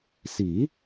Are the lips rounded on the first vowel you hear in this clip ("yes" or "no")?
no